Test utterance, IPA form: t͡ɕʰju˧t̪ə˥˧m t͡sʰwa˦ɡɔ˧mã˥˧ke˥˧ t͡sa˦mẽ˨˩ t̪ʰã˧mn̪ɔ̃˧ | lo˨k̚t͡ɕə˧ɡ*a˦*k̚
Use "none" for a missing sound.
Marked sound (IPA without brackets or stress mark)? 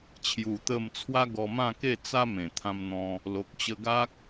a˦